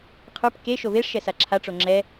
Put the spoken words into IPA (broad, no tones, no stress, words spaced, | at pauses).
qʰə˞p ke ʃoveʂʃɛsa ǁʰaʈ͡ʂo ŋ͡ǁɛ